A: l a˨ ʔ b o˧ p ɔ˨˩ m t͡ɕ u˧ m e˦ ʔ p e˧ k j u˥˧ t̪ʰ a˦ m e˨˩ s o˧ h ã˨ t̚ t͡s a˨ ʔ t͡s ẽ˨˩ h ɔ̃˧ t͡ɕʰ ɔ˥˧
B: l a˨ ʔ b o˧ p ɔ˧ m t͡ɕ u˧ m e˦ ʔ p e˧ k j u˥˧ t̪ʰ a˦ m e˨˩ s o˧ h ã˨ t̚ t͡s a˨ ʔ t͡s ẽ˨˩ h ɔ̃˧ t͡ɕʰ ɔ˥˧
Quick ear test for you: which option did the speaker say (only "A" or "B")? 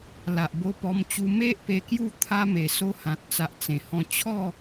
B